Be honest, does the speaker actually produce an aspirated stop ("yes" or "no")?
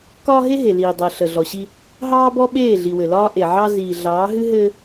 no